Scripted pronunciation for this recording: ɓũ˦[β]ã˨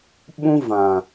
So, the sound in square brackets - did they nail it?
no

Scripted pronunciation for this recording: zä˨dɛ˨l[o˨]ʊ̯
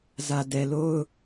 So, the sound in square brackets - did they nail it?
no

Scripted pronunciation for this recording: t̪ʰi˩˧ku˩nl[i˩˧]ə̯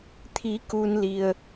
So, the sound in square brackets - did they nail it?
no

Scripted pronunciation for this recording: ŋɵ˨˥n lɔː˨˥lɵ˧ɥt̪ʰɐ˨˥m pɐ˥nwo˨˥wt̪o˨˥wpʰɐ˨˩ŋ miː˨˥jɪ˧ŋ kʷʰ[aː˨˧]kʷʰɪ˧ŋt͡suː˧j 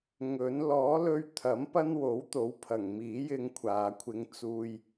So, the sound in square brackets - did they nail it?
yes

